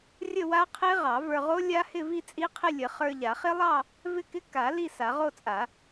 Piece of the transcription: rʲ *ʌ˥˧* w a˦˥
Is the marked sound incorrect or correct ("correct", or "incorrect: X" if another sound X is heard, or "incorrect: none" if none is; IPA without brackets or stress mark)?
incorrect: ə˥˧